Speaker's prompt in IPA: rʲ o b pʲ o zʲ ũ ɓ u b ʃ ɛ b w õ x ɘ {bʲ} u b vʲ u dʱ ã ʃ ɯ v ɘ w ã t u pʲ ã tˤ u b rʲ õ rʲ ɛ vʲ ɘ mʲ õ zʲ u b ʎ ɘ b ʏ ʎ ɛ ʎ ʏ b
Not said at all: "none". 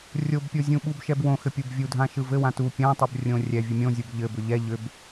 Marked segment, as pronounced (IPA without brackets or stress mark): pʲ